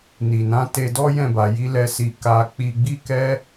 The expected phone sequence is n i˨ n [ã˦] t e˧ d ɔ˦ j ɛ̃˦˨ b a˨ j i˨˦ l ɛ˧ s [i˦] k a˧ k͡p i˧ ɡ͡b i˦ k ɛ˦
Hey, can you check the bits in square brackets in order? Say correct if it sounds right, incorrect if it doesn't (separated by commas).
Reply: incorrect, incorrect